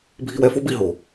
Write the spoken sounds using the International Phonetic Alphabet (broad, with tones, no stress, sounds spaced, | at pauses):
bʱ i˧ w ɛ˧ f o˥ b i˧ ɦ o˩